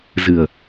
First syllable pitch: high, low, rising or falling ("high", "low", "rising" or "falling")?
low